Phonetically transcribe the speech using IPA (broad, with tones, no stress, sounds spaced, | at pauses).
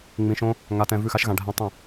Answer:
ŋ͡m ĩ˨ ʃ õ˦ | ŋ a˨ t ɛ̃˨ v ʉ˦˨ x a˦ ʃ ɣ ã˨ ɖʱ ɛ̃˦ tˤ ə̃˦˨